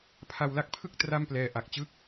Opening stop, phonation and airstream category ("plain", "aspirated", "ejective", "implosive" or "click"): aspirated